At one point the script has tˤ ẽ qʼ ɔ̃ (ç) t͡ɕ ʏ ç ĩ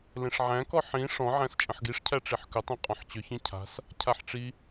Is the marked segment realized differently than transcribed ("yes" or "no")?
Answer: yes